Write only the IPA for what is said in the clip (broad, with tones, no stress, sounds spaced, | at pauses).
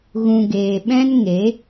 ɣ ũ˨ ɡ eː˨ ɓ ɛ̃˦ n ŋ e˨˦